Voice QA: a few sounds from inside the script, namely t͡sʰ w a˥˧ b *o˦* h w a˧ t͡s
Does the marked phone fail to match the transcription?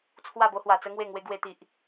no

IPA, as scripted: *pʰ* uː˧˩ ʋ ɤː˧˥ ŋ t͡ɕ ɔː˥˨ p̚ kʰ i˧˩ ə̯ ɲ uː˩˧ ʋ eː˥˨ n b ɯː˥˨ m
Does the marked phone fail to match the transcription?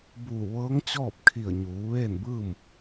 yes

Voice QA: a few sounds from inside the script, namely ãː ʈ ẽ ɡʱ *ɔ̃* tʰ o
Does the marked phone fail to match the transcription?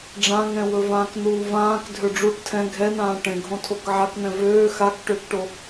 yes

